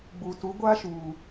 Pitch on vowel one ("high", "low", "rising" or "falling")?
low